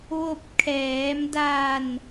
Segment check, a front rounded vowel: absent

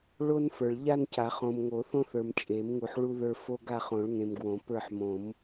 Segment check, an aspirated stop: absent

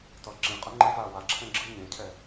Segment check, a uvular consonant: present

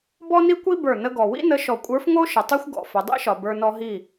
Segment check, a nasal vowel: absent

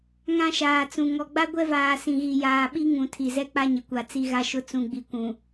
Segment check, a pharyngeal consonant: absent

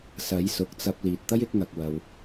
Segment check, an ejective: absent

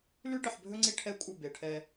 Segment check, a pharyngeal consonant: present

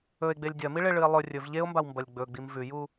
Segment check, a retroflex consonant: present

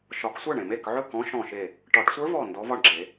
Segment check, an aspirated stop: absent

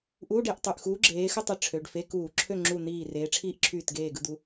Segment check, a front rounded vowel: present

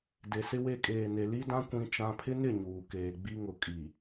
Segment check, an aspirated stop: present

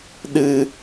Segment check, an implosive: present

